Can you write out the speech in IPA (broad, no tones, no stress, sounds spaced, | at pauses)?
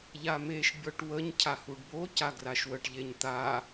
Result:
ʎ a m e ʃ bʲ ɔ ʈ w ə ɲ cʰ a h u ɖ b o c a ɡ r a ʃ w ə ʈ ʎ e ɲ t̪ a